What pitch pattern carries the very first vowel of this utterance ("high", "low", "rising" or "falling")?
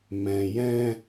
low